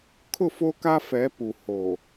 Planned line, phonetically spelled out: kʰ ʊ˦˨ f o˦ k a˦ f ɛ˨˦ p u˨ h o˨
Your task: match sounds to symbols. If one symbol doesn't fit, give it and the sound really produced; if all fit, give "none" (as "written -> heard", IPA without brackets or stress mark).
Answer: none